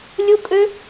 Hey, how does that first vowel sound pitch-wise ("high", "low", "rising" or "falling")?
high